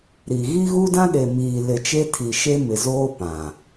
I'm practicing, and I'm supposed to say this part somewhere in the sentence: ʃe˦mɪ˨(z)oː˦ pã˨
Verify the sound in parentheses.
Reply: correct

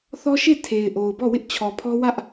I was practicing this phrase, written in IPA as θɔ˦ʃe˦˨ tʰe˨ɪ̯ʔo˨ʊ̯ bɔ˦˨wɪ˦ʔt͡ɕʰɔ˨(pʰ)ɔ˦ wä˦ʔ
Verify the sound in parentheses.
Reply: correct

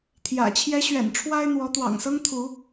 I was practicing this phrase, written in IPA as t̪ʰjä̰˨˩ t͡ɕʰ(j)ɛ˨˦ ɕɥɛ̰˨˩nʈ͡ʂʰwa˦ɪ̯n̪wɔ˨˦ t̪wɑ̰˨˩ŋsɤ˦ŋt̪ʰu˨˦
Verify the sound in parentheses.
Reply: correct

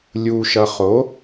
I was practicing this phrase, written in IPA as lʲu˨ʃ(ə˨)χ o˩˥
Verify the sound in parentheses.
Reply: incorrect: ʌ˨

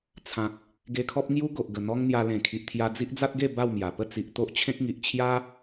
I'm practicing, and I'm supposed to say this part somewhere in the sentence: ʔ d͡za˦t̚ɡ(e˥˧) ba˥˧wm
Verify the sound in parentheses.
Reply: correct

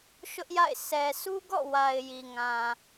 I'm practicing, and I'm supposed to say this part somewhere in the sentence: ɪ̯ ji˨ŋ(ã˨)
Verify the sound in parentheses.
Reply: correct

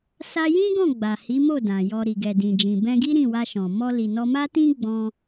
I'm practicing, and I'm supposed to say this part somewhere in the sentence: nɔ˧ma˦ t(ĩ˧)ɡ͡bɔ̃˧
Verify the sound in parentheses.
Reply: incorrect: ĩ˦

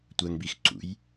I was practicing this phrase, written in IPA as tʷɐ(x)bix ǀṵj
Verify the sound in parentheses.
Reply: incorrect: ŋ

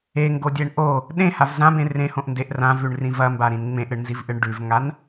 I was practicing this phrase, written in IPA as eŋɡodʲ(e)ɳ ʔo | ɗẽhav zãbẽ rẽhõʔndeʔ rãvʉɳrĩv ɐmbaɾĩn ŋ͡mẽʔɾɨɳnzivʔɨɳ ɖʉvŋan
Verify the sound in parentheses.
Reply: correct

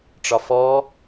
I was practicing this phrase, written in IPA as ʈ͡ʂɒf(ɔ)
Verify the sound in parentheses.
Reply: correct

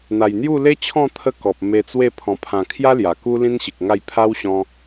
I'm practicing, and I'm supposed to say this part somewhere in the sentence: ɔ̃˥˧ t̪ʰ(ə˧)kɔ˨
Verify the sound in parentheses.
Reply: incorrect: ə˦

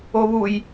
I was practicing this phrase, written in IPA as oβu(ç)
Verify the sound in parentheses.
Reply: incorrect: j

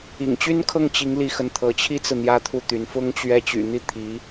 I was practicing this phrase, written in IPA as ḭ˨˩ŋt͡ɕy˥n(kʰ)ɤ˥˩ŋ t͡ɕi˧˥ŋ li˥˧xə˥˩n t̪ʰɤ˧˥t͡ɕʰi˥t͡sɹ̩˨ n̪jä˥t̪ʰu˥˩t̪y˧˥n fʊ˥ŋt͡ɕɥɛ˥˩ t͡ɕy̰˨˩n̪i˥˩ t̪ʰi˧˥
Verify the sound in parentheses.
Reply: correct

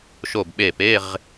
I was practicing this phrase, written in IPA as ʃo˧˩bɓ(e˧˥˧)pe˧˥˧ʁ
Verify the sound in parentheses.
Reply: incorrect: e˧˩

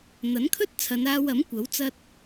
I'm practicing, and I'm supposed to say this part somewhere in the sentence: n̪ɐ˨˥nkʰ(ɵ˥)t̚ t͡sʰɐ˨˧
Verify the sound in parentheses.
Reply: correct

